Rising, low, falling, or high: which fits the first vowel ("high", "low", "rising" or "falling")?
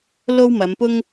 high